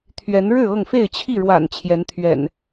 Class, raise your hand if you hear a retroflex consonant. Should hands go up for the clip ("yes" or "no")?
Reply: yes